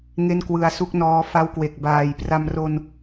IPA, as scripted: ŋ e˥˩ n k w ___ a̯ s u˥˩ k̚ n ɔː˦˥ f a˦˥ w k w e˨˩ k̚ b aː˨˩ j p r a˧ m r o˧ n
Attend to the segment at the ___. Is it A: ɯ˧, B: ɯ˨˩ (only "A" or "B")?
A